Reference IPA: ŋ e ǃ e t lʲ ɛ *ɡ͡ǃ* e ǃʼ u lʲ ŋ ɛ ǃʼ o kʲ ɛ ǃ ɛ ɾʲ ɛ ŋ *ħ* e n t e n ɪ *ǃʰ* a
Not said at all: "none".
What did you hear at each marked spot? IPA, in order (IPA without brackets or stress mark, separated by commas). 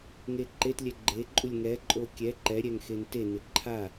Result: ɡ͡ǃ, x, ǃʰ